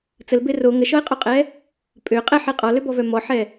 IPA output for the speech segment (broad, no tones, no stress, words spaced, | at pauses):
t͡səlbe ro ŋəʃɔɪ̯qʼoqʼɛ | pʼø qʼɛħe qʼɔløbɔvœ mɔħɛ